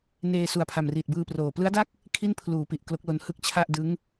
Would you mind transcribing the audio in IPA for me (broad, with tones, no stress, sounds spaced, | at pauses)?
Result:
n eː˧ s u˨˩ a̯ pʰ a˨˩ m r iː˨˩ t̚ b ɯː˧ p r oː˨˩ p l ɯ˦˥ a̯ d a˥˩ k̚ | kʰ i˥˩ n pʰ l uː˩˦ p i˨˩ ʔ k l o˦˥ k̚ l o˦˥ n h ɯ˦˥ k̚ t͡ɕʰ a˥˩ ʔ d ɯ˦˥ ŋ